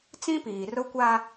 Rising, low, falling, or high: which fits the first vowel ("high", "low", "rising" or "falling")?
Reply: high